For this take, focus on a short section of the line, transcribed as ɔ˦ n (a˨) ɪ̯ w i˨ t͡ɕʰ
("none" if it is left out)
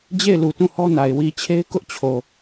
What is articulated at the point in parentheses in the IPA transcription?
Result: a˨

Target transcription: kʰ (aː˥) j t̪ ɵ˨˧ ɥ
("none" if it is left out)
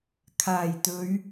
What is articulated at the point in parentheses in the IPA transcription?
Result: aː˨˩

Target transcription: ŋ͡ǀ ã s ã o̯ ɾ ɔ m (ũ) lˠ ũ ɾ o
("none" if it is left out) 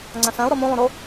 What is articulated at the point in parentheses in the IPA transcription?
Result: ũ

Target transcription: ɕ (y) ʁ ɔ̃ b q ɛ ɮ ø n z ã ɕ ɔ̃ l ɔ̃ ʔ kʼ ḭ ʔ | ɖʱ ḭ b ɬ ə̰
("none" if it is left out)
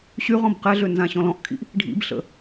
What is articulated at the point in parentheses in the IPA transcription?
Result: y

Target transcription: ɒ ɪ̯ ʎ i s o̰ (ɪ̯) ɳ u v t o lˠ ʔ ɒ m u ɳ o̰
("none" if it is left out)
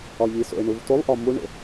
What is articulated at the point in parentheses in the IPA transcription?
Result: ɪ̯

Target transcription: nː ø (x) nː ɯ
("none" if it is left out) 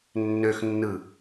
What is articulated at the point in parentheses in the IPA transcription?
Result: x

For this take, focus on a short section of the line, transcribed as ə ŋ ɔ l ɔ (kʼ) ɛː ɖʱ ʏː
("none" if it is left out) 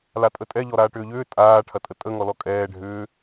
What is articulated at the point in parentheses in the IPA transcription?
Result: kʼ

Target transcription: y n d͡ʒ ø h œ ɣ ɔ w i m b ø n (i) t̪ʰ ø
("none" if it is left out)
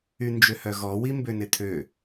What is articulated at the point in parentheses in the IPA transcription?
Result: ɪ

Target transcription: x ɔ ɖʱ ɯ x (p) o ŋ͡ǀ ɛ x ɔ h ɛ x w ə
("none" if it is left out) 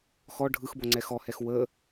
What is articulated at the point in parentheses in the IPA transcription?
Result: b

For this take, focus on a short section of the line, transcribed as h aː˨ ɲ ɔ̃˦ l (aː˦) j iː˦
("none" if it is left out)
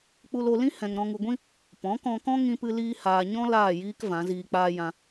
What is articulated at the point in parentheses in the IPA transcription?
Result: aː˦˨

